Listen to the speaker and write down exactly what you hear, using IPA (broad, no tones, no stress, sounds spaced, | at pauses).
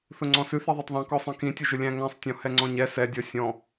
θ ʊ ŋ͡ǀ ɔ̃ s ʉ θ i ðˤ ʉ tˤ ðˤ ɛ̃ k ɔ sˤ ĩ k ĩ tʲ ʊ ʒ ʊ lʲ æ̃ ŋ æ̃ sˤ tʲ ɔ̃ h ɛ ŋ͡ǀ ɔ̃ ɲ ɛ s ɛ dʲ ɔ sʲ ɔ̃